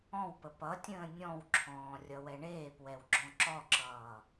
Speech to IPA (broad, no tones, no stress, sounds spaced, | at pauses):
ɔ̃ w p ə p ʌ tʲ ə̃ː nʲ ɔ̃ w ǁʰ ɔ̃ː rʲ ʌ w ɛ ɳ eː p w ɛ w ɡ͡ǁ ɔ̃ ǁ ɔ ǁ ʌː